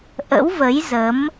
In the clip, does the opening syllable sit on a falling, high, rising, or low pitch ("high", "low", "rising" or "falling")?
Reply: rising